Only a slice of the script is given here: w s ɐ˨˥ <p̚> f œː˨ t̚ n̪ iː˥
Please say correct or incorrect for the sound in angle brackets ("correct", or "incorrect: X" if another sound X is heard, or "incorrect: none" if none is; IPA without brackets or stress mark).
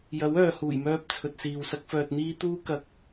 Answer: incorrect: k̚